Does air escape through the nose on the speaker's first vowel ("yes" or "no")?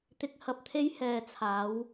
no